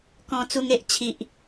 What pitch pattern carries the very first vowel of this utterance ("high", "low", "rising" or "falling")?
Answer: low